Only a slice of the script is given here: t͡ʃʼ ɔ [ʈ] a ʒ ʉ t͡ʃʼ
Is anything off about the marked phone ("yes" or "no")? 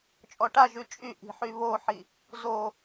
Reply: no